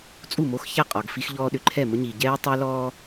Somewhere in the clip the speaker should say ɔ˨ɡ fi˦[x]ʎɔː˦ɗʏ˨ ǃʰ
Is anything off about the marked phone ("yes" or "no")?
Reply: no